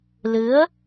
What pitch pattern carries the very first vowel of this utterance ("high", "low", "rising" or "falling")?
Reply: rising